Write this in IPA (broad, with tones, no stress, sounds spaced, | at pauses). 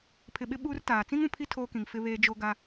pʰ ɪ˨ ɓ ɪ˦ ɓ uː˦ r t aː˨ t͡s ĩ˦ ŋ ũ˨ pʰ i˦ tʰ oː˦ k ĩ˨ ŋ f ɪ˦ β eː˦ d͡ʒ o˦ ɡ a˦